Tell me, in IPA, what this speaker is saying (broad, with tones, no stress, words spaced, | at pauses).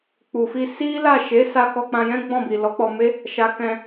k͡pu˨fi˧ si˦ la˦˨ʃe˨˦sa˧ kɔ˧k͡pã˧jɛ̃˦ ɡ͡bɔ̃˦˨bi˨ lɔ˨˦k͡pɔ˧me˦ | ʃa˧kɛ̃˧